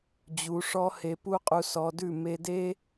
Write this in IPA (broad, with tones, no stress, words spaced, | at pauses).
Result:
d͡ʑu˨˦ʂɔ˦he˧ pu˦qʼu˧sɔ˧dʉ˦˨ me˧de˦